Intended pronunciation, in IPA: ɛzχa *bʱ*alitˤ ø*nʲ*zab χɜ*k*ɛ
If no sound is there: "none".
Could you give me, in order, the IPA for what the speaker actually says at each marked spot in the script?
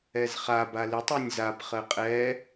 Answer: b, nʲ, qʼ

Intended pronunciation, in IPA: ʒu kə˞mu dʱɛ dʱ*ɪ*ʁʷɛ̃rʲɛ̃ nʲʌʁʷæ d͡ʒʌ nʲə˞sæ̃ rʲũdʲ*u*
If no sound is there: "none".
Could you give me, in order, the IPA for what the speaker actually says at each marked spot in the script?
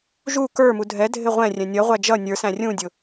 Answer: ɪ, ʊ

